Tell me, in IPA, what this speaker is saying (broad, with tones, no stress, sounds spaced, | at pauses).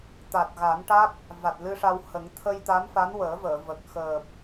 t̪ a˨˩ t̚ ɣ a˨˩˦ n ʈ a˦˥ k̚ | v a˨˩ t̚ l ɨ˧ ʂ a˧ w h ə˨˩˦ ŋ t̪ʰ ə˧ j t̪ a˧˥ m f a˧˥ n w əː˨˩˦ v əː˨˩˨ v ə˨˩ k̚ x əː˨˩ p̚